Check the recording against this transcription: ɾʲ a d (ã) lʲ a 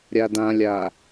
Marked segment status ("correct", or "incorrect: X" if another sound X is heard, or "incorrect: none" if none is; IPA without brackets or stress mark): correct